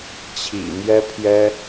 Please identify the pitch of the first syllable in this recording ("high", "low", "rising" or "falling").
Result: low